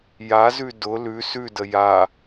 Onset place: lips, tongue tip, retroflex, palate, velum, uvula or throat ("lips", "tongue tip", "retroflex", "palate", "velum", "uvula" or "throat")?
palate